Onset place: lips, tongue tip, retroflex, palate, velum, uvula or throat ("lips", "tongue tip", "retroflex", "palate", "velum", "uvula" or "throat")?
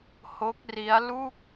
throat